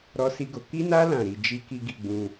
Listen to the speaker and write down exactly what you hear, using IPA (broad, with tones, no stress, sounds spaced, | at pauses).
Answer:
ɾ ɔ˦ s i˦ ɡ o˧ k i˦ n a˦ l ã˦˨ ɾ i˧ d͡ʒ i˦ k i˦ ɡ i˧ ɡ͡b ũ˧